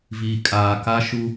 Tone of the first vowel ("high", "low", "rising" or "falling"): low